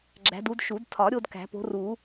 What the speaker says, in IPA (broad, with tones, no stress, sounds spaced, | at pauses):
ɡ͡ǁ æ̤˨˦ d u˨˦ d ʃ u˨˩˦ d tʰ ɒ˨˩˦ ɾʲ o˥˧ d k æ̤˨˩˦ p o̤˨˦ r u˨˩˦